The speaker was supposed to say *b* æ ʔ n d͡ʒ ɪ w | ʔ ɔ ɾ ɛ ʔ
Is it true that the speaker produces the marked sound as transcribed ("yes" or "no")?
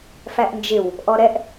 no